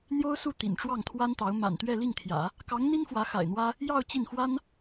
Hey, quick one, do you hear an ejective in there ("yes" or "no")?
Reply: no